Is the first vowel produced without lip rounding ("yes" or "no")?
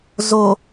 no